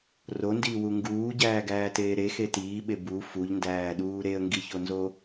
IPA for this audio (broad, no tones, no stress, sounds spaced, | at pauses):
r o n d iː w u ŋ ɡ uː ɟ æː ɡ æː t eː ɾ e x e t iː ɓ e b u f u ʎ n d æː ɗ uː ɾ e ə̯ ŋ ɡ i ç o n z o